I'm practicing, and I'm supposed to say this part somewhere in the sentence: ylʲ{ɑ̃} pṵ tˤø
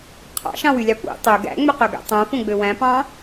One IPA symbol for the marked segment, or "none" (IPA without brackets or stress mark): ɑ